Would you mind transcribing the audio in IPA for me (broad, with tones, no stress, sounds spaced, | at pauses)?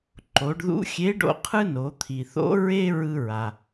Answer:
ǃ o˩˧ ɖ ð ṵ˧˥ xʲ e˧˥ ɖ o̰˧ qʰ ɯ˥ n o˩˧ t̪ʰ i˩ θ o̰˧˥ ɹ e˥ ɹ ɯ˧ ɹ a˩